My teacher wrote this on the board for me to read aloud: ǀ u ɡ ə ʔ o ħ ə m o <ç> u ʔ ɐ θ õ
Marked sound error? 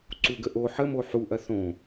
yes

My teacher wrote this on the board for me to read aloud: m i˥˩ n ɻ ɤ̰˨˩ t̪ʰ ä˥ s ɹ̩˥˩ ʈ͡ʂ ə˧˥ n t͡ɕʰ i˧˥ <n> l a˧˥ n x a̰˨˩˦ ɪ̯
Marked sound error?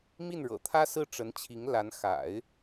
yes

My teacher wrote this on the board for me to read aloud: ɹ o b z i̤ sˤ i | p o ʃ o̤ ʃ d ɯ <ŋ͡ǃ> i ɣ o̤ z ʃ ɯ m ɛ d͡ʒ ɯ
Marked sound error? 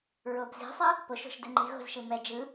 no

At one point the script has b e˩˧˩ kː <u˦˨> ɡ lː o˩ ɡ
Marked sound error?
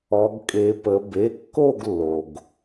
yes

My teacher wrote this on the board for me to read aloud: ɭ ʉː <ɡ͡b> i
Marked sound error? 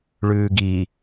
yes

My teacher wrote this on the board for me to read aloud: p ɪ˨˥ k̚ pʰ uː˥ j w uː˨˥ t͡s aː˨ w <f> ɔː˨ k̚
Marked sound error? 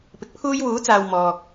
yes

